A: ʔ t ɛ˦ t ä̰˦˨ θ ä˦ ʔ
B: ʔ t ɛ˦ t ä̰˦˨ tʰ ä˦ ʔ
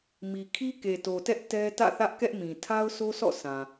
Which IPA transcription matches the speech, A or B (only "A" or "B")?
A